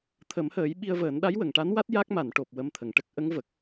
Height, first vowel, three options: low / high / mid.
mid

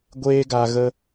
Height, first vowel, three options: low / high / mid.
mid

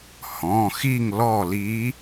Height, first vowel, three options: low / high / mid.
mid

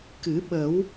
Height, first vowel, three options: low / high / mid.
high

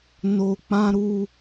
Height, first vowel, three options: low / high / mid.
mid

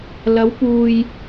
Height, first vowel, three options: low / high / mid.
low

